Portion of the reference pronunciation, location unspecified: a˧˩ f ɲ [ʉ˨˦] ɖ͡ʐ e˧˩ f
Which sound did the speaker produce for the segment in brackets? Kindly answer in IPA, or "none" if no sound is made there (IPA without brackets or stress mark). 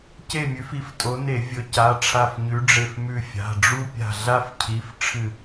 ʉ˨˦